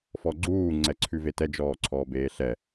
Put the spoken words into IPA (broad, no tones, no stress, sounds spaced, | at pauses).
f ɔ ɡ͡ǀ uː ŋ͡ǀ ɛ ǀʰ ʉ v e t ɛ d͡ʒ ɔː ǀʰ ɔː b eː ɬ ɛ